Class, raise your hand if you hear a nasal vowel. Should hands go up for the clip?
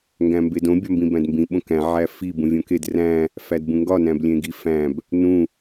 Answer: yes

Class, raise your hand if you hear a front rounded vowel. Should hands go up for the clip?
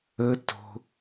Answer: no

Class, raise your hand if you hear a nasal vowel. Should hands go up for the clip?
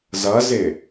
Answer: no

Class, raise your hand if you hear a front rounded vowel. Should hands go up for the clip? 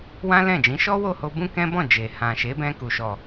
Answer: no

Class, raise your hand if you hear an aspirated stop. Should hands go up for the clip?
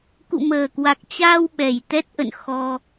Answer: no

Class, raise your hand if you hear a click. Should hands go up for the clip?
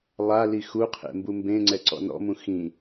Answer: yes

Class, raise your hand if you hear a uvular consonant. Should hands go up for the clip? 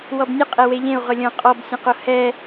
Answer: yes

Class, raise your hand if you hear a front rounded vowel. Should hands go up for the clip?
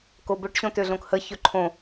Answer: yes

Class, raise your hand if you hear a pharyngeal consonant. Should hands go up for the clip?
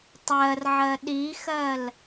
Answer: yes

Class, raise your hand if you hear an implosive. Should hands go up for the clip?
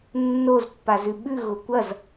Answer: yes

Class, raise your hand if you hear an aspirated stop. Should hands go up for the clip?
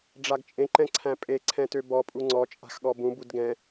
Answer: yes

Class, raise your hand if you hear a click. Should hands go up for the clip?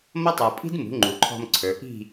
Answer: yes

